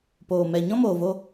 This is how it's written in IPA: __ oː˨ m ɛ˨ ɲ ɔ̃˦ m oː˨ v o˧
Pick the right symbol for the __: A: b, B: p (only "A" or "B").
B